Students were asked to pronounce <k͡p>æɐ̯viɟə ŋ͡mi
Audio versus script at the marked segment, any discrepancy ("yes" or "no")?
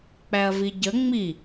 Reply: no